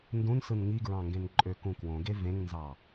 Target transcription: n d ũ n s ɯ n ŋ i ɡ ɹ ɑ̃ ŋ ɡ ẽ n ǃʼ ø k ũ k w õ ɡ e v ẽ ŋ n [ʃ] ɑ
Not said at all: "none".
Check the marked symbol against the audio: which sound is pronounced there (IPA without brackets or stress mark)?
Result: z